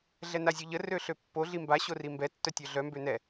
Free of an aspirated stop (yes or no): yes